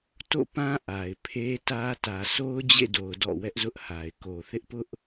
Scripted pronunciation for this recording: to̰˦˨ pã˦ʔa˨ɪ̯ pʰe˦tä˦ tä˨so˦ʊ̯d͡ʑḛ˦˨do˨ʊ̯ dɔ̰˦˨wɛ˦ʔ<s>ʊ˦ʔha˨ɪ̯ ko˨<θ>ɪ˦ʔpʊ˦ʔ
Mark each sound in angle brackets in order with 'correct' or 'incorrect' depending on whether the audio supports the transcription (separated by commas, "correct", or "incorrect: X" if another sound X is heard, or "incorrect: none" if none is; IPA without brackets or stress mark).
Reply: incorrect: z, correct